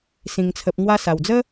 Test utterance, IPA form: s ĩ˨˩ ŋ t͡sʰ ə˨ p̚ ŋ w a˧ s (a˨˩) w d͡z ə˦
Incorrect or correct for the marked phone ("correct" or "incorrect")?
correct